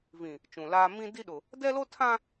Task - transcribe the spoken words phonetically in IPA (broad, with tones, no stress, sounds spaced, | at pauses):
v ĩ˨ | t͡ʃ ũ˨ l aː˦ m ĩ˦ d i˦ ɗ ʊ˨ | d ɛ˦ l o˦ tʰ ã˦